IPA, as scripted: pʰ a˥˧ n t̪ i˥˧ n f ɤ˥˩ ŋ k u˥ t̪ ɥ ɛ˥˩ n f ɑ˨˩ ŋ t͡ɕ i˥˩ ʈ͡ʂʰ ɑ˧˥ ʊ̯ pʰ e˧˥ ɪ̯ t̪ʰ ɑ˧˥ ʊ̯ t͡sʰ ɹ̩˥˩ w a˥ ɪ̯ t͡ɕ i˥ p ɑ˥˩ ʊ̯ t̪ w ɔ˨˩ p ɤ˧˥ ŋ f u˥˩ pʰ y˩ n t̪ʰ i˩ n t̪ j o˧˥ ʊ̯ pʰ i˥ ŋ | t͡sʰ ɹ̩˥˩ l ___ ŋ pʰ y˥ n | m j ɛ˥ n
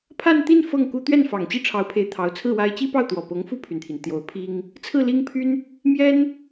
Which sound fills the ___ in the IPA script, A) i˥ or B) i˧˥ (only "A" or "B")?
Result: A